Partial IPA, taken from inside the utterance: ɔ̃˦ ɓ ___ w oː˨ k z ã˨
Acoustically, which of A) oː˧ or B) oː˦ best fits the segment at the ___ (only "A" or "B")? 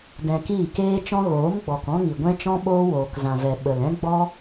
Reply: B